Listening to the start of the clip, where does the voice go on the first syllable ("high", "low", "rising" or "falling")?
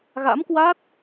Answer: rising